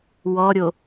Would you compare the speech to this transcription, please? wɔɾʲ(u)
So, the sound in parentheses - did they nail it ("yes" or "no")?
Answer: no